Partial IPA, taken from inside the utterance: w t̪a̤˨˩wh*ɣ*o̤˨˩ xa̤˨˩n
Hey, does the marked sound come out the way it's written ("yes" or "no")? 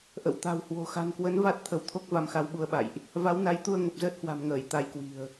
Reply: no